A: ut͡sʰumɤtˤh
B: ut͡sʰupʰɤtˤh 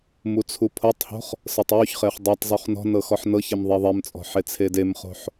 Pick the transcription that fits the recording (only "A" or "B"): B